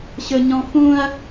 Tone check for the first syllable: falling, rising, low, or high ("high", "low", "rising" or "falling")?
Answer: high